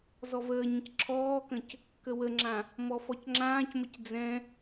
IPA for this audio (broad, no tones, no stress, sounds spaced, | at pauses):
z ɔ v əː ɲ ə̃ c ǁʰ ɔː k ə̃ c | k ə w ə ŋ͡ǁ ã | m ɔ f ɔ c ŋ͡ǁ ãː c m ə c d͡z ɛ̃